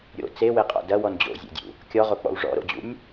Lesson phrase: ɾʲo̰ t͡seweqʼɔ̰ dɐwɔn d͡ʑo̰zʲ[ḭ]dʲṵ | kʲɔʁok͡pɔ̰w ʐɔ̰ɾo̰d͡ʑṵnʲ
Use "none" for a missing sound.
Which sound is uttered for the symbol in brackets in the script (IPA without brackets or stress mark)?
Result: ḛ